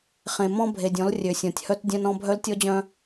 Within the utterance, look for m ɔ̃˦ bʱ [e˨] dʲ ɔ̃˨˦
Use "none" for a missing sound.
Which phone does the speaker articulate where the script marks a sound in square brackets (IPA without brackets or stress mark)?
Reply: e˨